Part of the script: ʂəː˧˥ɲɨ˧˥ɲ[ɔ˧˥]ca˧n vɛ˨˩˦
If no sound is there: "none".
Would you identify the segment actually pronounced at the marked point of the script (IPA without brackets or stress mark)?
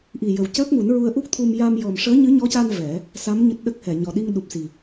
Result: ɔ˧˥